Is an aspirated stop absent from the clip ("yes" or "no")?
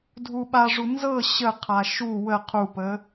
no